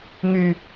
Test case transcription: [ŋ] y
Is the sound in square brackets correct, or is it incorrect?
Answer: correct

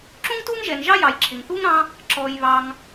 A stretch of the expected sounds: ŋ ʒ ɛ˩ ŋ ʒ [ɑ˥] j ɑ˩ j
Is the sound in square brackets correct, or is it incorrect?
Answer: correct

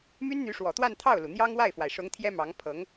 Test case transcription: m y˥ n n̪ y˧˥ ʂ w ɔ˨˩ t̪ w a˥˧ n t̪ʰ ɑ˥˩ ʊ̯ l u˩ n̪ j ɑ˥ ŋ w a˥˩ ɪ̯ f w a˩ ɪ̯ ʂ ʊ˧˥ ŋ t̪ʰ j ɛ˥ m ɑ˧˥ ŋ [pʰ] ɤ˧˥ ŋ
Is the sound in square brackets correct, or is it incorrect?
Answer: correct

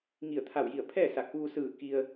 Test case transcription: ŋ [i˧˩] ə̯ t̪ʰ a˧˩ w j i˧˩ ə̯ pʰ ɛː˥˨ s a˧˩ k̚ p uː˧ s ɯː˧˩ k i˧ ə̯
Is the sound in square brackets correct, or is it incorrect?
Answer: correct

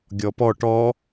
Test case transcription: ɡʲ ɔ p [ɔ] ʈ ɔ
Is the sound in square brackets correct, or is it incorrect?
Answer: correct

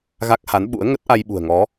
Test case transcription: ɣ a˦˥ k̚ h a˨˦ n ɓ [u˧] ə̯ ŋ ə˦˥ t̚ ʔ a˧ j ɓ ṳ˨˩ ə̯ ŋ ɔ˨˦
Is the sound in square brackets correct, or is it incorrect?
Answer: incorrect: ṵ˧˥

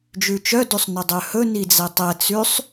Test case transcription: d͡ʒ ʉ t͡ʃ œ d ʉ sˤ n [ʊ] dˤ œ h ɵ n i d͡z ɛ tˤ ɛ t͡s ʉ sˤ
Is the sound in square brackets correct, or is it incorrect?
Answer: incorrect: ɵ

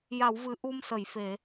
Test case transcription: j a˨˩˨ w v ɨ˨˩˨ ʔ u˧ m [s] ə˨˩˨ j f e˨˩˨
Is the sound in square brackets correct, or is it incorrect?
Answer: correct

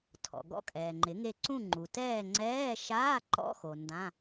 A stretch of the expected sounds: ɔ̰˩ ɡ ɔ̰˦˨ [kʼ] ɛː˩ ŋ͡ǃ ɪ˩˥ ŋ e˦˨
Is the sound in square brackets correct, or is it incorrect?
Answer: correct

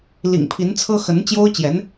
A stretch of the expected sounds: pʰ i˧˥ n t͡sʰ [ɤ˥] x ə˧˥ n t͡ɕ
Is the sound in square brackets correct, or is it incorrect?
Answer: correct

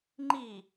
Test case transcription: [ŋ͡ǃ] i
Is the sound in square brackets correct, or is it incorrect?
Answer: correct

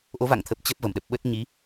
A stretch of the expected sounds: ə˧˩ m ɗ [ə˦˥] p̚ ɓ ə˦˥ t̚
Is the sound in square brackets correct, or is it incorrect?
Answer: incorrect: ə˨˩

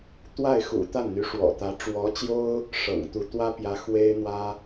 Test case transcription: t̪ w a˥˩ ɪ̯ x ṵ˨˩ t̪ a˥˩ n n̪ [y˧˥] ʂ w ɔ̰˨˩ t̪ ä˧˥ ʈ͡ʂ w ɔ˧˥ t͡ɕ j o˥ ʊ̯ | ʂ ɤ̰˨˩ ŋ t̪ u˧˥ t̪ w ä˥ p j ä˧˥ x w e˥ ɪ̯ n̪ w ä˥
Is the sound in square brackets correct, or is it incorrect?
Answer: correct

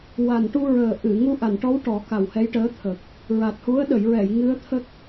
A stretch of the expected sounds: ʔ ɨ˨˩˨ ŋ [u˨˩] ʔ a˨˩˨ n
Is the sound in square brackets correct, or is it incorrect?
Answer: incorrect: u˧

